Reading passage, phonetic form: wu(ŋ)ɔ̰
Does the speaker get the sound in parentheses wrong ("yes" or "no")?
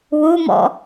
yes